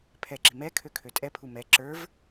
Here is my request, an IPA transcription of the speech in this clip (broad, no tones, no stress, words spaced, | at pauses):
pʰɛǁi̤ mɛ kʰøkʰøtʼɛpʰu mɛ ǁə˞v